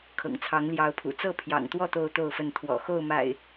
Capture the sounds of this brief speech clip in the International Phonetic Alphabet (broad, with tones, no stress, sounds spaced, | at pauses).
kʰ ɤ̰˨˩ ŋ t͡sʰ ɑ˨˦ ŋ l j ɑ˨˦ ʊ̯ pʰ ṵ˨˩ t͡s ɤ˥˨ pʰ j ɑ̰˨˩ ŋ t̪ w ɔ˥˨ t̪ o˥˨ ʊ̯ t̪ o˥˨ ʊ̯ f ə˥˨ n t̪ʰ w ɔ̰˨˩ x o˥˨ ʊ̯ m a̰˨˩ ɪ̯